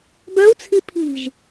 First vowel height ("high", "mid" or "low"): mid